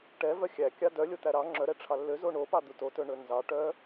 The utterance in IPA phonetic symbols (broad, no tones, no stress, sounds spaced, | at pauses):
ʈ ɛ v œ xʲ æ kʲ ɑ d œ lʲ o t̪ æ ɾ ɑ ŋ͡ǁ œ ɾ ɛ ʈ͡ʂʰ ɑ lː ø z o ɳ o p ɑ d̪ u t o t ɵ ɳ ɵ n z ɑ ʈ œ